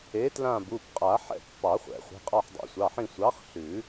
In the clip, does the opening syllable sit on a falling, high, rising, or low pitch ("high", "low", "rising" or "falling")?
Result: rising